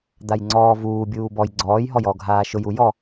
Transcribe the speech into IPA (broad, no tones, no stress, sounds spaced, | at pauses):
d̪ a j ŋ͡ǀ ɔː v uː bʲ uː b ɔ j ɡ͡ǀ ɔː j ɦ ɔ j ɔ ɡʱ aː ʃ ʊ j u j ɔ